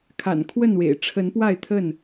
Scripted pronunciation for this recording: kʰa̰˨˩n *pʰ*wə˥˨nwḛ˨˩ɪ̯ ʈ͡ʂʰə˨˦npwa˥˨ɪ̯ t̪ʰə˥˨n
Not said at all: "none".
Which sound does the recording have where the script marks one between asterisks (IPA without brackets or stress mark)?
kʰ